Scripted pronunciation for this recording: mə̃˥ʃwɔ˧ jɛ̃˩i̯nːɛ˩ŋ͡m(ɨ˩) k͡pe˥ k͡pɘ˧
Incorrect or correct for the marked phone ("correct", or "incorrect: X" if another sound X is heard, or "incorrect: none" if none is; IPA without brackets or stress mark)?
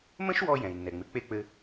correct